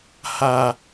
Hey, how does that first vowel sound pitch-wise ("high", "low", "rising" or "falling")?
low